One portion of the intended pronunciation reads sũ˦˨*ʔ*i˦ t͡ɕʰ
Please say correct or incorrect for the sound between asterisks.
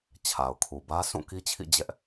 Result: incorrect